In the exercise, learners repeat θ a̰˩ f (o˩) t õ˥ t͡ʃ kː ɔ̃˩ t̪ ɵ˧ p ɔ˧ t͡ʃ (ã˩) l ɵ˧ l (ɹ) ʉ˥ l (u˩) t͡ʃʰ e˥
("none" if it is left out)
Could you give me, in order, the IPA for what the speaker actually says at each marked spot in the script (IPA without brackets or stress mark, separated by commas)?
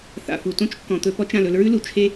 u˩, ã˩, ɹ, u˩